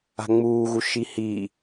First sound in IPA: a̤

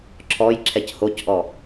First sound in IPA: ǁʰ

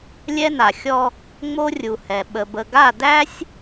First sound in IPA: lʲ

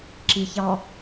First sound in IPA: ǁ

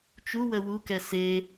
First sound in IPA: t͡ʃ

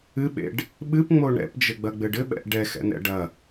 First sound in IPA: ɨ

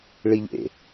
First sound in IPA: ɭ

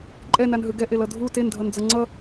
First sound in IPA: ǃʼ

